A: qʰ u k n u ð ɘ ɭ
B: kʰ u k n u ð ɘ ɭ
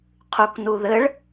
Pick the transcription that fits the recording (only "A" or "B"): A